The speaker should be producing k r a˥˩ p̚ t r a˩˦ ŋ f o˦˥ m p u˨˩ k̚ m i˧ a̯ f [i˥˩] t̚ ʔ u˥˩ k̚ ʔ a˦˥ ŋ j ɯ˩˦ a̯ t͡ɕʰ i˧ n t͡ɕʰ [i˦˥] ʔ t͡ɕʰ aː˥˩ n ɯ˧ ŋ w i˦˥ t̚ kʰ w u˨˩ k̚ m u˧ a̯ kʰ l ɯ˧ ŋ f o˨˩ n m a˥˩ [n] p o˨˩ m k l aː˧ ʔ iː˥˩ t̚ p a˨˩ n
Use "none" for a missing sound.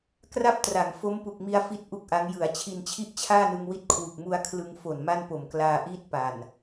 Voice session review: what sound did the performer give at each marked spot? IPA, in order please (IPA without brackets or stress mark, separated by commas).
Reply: i˥˩, i˥˩, n